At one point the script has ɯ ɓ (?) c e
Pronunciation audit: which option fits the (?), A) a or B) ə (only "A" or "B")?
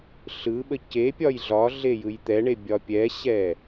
B